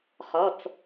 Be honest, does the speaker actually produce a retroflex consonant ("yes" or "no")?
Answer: no